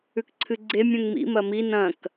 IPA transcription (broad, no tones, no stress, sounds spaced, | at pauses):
ʉ k ǀʰ ɨ ɡ͡ǀ e mʲ ũ ŋ m ḭ m ɐ m i n ɐ̃ k